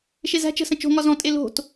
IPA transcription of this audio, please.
ʃ e z æ̤ t͡ʃ ə̤ s ə̃ t͡ʃ o̤ ŋ ɒ z ɔ̃ tʼ e l o̤ t

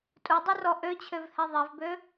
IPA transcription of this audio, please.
tʼ u dˤ u r ɔ ʔ ø t͡ɕʰ ø v h ɛ ðˤ ɛ v b ø

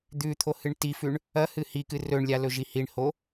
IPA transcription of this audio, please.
d̪ ʉ t̪ʰ o h ɨ ɳ t i f ʉ ɳ | ɐ h ɨ h i k ɨ r ɵ ɳ lʲ a l ɵ ʒ i h i ɳ h o

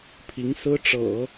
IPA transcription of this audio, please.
pʰ i˧˥ ŋ s ɹ̩˥ ʈ͡ʂ ɤ̰˨˩˦

